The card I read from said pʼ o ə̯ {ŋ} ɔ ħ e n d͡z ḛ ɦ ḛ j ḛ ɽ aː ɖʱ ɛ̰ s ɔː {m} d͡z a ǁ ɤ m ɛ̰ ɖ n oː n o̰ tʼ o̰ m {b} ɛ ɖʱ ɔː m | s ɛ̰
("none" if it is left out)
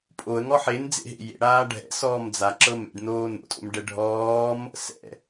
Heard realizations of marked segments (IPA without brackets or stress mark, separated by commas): ŋ, m, ɖ